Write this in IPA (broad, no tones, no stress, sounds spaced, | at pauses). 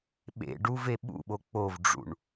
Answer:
ɓ ḛ ɖ u v e ɓ ṵ ɓ o k͡p o v ɖ͡ʐ ṵ ɳ